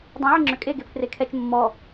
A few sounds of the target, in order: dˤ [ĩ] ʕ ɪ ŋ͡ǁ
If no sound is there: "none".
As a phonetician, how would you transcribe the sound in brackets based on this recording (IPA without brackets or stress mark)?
ẽ